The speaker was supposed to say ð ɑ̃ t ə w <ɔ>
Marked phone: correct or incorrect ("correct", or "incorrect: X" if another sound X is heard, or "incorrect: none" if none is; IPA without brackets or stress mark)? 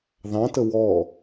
correct